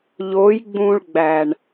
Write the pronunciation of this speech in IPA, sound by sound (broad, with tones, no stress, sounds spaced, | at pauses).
ʎ o˨˦ j ɡ͡b ũ˧ ɭ ɡ͡b æ˨ ɳ